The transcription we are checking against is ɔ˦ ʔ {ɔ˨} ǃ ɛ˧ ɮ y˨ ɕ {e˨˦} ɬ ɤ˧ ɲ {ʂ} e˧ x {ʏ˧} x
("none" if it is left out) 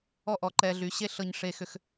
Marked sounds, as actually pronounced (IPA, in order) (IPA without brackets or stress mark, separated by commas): ɔ˨, e˦, ʂ, ʏ˧